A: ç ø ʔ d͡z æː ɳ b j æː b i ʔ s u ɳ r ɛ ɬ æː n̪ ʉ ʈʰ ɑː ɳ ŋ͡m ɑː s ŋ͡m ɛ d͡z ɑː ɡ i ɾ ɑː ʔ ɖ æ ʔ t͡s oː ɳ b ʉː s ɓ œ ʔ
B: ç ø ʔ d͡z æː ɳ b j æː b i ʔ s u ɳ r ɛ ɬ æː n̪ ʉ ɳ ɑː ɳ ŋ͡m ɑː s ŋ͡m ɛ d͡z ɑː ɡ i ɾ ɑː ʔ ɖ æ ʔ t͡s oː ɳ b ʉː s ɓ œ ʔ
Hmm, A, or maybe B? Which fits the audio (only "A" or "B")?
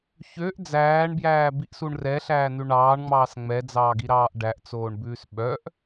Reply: B